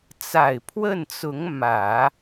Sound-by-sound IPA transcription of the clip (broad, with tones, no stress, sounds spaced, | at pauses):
t͡s a˨˩ ɪ̯ pʰ w ə˥˩ n t͡s ʊ˧˥ ŋ m ä˨˩˦